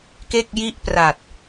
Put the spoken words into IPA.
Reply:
k e˥˩ k̚ j i˥˩ ʔ p r a˨˩ t̚

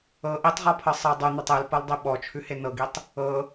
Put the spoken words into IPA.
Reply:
ɤ ʔ i tˤ ʁ ɔ pʰ ɤ sˤ ɤ dˤ ʉ n̪ ɤ tˤ e l p ɤ l dˤ i ɓ ɔ t͡ʃʰ ʉ h e n ɤ ɡ i tˤ | ɤ

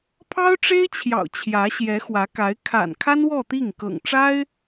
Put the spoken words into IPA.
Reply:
pʰ ɑ˥ ʊ̯ ʈ͡ʂ e˥ ɪ̯ t͡ɕʰ j ɑ̰˨˩ ʊ̯ t͡ɕʰ j ä˧˥ ɕ j ɛ˧˥ x w ä˧˥ k a˧˥ ɪ̯ kʰ a̰˨˩ n kʰ a˥ n w ɔ˥˧ t̪ i˥˩ ŋ k ɤ̰˨˩ ŋ ʈ͡ʂ a˥ ɪ̯

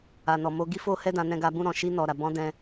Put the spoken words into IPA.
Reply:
a˨ n ɔ˨ m o˧ ɡ i˦ f o˦ h ɛ˦ d ã˧ n ɛ̃˧ ɡ a˧ b ũ˦ ɾ ɔ̃˧ ʃ i˧ n ɔ˨ ɾ a˨ b ɔ̃˨˦ d ɛ̃˧

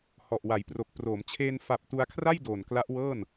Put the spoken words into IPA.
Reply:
h ɔ˨˩ ʔ w a˩˦ j p r o˨˩ k̚ p r oː˩˦ m t͡ɕʰ eː˧ n f a˨˩ p̚ t u˧ a̯ kʰ r a˥˩ j d oː˨˩ n k l a˦˥ ʔ w ɤː˥˩ n

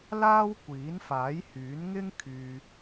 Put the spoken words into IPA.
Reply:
l aː˥ w kʷ iː˨˥ n f aː˨˥ j h yː˨˥ n ŋ ɪ˥ ŋ kʰ yː˧

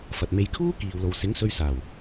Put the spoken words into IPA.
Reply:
f ɐ˨ t̚ m e˧ j kʰ uː˥ k iː˨ w l o˨ w s ɪ˨˥ ŋ s ɵ˧ ɥ s aː˨˩ w

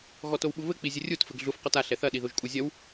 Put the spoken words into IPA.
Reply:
ɣ ɔ t o w ɓ u β ɘ k͡p i zʲ ɘ rʲ u t f ɘ ɡ ɮ u f q ɔ t a ɬ ɛ θ ɐ ɗ i ð o ʒ kʼ u zʲ ɐ w

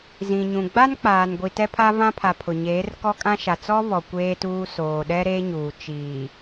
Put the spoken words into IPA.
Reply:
z ĩ˨ ɲ ũ˨ ɡ͡b a˦ n k͡p aː˨ n ɡʷ i˨ t ɛ˦ pʰ a˦ v ã˦ pʰ a˨ pʰ ʊ˨ ɲ eː˨˦ r k ɔ˦ kʼ ã˦ ʃ a˨ t͡s ɔ˦ β ɔ˨ kʷ eː˦ t uː˦ s oː˨ ɗ ɛ˦ ɾ eː˦ ɲ uː˨ t͡ʃ iː˨

